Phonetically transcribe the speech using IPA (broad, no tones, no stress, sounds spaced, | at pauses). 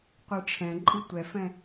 qʷ ɨ ʈ͡ʂʰ ɛ̃ ǃʼ i tʷ ɛ f ɛ̃